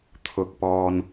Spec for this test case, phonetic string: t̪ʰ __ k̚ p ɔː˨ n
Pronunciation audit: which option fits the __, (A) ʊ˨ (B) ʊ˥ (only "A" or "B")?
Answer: A